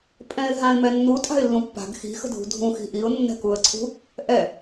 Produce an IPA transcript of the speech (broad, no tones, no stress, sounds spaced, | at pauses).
pʼ ɛ̃ ɪ̯ ɦ ã ɪ̯ m ɛ nː u tʼ a̤ ɪ̯ lː ũ pː a̤ ɡ x i̤ x ə̤ dʱ ṳ dʱ ũ x i̤ ʔ i ʊ̯ nː ɛ̤ k u ə̯ ǀʰ ṳ | ʔ ɛ